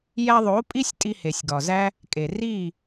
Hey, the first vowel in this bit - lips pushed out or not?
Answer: no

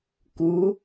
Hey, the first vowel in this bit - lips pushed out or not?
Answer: yes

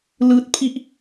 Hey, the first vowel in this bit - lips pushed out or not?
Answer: no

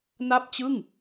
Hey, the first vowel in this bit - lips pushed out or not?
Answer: no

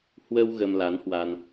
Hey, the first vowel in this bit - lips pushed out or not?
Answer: no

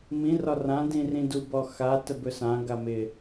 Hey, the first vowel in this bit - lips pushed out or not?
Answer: no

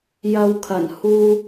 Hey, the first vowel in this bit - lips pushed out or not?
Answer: no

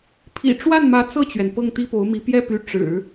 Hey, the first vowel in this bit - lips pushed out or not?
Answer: no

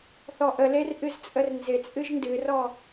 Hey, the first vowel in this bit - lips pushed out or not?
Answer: yes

